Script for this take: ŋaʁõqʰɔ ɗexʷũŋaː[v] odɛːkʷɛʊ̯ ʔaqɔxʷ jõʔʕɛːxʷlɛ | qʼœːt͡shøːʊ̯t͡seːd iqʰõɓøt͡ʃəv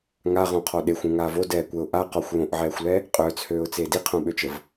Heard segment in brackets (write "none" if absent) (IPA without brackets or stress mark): v